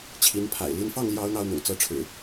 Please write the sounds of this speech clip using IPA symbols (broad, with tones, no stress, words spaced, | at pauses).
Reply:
t͡ɕʰi˨˦npʰa̰˨˩ɪ̯li˦n fɑ˥˨ŋ ljɑ˦ʊ̯n̪ɑ˦ʊ̯n̪ʊ̰˨˩ŋ t͡sɤ˦ʈ͡ʂʰɻ̩˨˩